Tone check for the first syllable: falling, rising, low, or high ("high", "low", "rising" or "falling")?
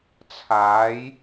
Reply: rising